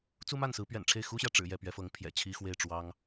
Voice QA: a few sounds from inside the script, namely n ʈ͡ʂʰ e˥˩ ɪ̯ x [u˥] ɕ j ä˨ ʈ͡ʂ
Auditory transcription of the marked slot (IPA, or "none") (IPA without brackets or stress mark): u˥